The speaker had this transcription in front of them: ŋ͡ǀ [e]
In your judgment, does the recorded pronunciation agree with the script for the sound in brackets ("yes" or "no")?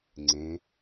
no